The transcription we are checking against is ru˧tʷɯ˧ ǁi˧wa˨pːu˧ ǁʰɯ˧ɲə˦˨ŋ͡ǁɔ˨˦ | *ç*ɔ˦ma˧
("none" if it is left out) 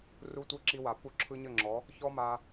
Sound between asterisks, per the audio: ç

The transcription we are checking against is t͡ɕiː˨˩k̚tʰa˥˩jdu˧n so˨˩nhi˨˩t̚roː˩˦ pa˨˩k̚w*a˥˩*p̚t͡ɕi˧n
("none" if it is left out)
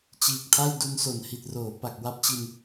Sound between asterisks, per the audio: a˥˩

